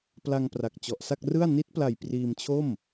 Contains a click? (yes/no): no